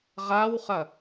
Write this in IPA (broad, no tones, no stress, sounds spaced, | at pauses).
ʁ a w χ ɐ